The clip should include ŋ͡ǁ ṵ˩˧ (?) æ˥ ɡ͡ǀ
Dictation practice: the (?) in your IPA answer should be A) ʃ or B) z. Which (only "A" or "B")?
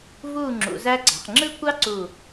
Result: B